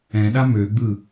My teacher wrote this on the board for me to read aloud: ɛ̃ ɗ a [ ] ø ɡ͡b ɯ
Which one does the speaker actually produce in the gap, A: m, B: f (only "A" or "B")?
A